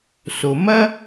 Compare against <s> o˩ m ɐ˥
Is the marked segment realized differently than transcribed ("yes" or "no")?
no